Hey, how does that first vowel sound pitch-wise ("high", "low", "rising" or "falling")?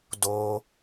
high